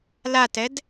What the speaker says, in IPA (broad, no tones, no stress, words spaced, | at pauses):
latɛd